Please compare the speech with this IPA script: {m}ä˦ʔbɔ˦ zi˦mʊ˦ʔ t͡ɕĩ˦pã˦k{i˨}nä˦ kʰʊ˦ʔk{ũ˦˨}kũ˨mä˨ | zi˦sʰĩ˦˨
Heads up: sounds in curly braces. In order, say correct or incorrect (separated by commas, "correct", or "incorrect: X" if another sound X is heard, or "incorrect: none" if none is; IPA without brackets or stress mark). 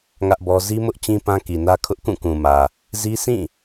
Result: incorrect: ŋ, correct, correct